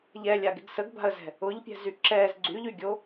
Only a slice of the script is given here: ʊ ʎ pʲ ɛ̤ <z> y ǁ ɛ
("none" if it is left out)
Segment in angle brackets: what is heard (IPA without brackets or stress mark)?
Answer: z